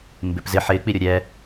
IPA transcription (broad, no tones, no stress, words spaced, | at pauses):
mbɪp zɪ ħɪːk͡piɾʲo ɾʲɛ